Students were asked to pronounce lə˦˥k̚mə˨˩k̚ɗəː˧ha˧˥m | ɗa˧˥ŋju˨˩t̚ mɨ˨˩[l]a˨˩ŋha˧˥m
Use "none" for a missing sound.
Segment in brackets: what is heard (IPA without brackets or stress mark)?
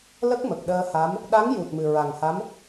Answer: ɹ